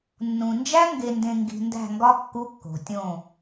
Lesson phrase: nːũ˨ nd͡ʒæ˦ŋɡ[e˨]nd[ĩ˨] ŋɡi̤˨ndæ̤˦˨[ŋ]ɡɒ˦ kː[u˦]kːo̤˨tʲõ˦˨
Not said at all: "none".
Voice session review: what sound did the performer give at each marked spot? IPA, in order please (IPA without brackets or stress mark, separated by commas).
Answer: e˨, ẽ˨, ŋ, u˦